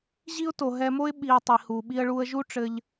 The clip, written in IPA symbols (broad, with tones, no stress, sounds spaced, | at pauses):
ʑ i˦ ʊ̯ t o˨ ɦ ɛ˧ m o˦ ɪ̯ ɓ i˧ ə̯ tˤ i˨ h u˨ ɓ i˧ ə̯ ɭ u˧ ə̯ ʒ u˦ ʈ͡ʂ ɘ˧ ʎ